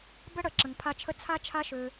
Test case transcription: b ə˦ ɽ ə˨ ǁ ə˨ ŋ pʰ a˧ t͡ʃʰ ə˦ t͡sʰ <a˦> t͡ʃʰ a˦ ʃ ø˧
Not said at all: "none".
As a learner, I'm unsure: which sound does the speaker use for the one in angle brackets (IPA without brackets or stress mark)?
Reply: a˦